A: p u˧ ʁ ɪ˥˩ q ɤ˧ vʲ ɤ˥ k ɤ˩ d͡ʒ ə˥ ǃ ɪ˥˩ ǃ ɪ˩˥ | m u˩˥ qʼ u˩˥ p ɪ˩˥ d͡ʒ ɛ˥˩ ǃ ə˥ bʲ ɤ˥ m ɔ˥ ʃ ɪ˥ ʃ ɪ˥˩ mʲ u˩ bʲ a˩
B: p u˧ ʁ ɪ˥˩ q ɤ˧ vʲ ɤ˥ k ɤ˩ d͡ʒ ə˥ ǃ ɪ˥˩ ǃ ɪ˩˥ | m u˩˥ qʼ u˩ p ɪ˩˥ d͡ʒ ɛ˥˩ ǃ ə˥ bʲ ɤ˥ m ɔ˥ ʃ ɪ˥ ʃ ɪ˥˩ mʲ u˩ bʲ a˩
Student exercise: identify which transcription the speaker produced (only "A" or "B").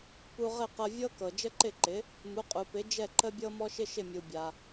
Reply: B